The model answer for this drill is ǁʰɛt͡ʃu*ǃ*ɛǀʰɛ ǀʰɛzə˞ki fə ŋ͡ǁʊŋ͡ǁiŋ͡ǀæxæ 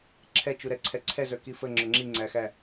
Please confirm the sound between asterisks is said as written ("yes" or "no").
no